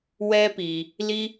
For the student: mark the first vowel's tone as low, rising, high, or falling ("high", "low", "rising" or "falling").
high